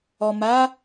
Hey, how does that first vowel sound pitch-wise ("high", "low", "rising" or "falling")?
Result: low